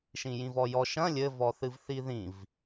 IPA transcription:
ʃ ĩ j ĩ v ɔ j ɔ ʃ ɐ̃ lʲ ɘ v ɔ θ ɨ v θ i ð ĩ v

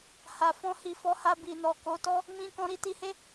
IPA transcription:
h a˨ f ɔ̃˧ h i˨ f ɔ˨˦ h a˧ b i˨ n ɔ˨ k o˨˦ t ɔ˦ | m ĩ˧ k ɔ̃˧ ɾ i˧ t i˧ h e˦

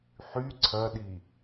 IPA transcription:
ħ y ǀʰ ɐ ɗ i

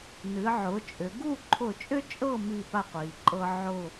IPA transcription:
n ɨ˩˧ ʕ ʊ˩˧ t͡ʃʼ ʏ˩˧ ɡ u˥˧ ǃʰ ʊ˧˩ t͡ʃʼ ʏ˥ t͡ʃʼ ɤ˥˧ m i˥˧ p a˥˧ qʷ i˩ ǃʼ ɤ˥ ʕ ʊ˥˧

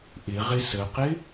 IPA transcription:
ʔ ɪ ʁ ɪ s ə q ɪ

